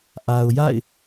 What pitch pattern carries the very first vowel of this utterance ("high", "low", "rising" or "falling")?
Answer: low